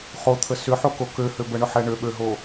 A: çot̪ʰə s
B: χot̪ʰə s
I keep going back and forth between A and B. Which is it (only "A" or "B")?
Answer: B